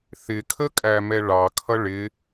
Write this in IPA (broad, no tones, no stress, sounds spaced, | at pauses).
θ ɪ kʰ ə kʼ æ m ɛ ɭ ɑ kʰ ʌ ɭ ɪ